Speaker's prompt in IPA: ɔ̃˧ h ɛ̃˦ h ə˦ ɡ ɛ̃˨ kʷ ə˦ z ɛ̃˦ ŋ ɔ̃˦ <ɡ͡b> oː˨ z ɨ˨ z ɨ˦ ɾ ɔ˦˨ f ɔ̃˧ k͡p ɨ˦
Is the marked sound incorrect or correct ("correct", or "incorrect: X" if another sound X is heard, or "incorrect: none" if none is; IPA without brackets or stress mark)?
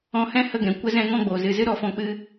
correct